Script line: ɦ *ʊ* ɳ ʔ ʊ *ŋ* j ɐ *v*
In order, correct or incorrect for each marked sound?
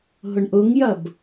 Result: correct, correct, incorrect: b

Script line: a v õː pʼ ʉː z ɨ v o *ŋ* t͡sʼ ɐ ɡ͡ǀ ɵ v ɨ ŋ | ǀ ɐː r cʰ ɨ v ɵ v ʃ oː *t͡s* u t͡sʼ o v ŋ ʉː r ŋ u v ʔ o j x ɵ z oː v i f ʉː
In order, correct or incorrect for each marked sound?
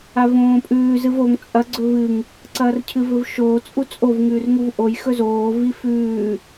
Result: correct, incorrect: t͡sʼ

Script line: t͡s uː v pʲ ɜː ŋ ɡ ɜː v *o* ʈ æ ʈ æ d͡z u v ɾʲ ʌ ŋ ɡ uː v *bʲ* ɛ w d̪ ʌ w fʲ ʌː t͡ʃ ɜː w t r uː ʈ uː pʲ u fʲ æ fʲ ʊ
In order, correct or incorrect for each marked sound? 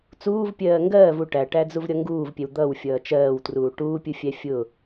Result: incorrect: u, incorrect: pʲ

